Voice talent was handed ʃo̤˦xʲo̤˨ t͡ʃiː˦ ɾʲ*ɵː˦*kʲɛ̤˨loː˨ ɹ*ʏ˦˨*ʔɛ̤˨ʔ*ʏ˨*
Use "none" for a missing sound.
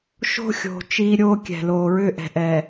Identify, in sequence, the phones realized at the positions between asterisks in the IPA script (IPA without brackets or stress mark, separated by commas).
oː˦, ʏ˦˨, ɛ˨